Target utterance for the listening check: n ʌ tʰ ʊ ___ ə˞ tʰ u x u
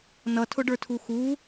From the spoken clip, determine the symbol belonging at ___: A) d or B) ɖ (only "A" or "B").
B